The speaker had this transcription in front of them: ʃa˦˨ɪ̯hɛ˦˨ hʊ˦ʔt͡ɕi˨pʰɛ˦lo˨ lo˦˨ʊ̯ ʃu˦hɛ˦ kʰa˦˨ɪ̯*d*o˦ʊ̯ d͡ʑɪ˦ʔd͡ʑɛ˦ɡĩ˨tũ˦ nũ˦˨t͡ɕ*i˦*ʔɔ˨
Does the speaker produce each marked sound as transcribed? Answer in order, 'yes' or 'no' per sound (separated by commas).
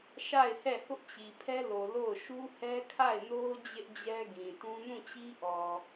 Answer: no, yes